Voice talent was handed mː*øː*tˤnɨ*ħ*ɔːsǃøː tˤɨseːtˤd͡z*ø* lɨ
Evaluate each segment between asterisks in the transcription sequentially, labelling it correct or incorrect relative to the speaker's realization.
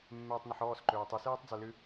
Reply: incorrect: eː, correct, correct

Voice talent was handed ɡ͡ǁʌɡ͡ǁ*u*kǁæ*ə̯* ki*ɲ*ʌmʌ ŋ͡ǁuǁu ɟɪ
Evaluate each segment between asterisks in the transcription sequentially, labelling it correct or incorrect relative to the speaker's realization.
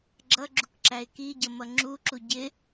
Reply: correct, incorrect: ɪ̯, incorrect: ɟ

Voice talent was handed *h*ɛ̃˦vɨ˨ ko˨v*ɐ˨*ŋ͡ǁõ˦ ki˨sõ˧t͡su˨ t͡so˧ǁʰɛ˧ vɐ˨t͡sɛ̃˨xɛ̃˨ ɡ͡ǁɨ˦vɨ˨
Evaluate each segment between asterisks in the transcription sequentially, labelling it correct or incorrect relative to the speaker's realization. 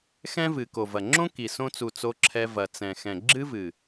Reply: incorrect: x, correct

